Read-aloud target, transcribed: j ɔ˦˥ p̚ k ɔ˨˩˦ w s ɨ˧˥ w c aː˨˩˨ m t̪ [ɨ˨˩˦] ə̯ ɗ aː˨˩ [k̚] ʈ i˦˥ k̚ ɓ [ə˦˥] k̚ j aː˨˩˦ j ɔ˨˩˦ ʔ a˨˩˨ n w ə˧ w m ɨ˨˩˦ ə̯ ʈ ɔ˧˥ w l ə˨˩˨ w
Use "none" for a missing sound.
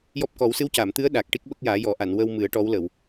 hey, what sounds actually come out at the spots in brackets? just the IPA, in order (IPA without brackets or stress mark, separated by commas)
ɨ˧˥, k̚, ə˦˥